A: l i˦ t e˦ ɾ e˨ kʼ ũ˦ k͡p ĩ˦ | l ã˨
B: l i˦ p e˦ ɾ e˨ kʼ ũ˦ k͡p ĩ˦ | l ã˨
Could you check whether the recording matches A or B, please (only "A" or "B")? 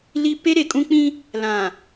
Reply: B